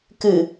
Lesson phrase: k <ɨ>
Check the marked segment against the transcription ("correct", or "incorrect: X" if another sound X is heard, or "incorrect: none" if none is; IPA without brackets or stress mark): correct